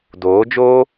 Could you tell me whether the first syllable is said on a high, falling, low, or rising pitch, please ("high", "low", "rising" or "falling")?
rising